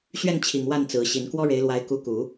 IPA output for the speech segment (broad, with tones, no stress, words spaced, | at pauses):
ɕɥɛ˥˩nt͡ɕʰi˨˩ŋ wa˥˩n t͡sɹ̩˧˥ɕi˧˥n kwɔ˥ɻe˧˥ɪ̯lwa˧˥ɪ̯ ku˧˥ku˨˩˦